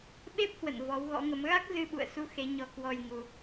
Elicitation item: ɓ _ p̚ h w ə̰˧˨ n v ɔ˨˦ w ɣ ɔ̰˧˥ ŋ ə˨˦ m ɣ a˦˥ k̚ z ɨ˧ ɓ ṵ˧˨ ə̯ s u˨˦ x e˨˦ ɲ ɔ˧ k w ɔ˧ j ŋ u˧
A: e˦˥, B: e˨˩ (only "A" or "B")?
A